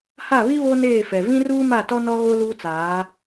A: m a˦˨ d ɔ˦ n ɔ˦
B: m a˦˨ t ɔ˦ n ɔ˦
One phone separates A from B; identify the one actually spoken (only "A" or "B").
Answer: B